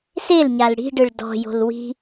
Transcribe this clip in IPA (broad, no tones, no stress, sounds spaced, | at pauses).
s e l ɲ a l ɽ i̤ ɖ ɯ ɭ d ɔ̤ j o̤ l w i̤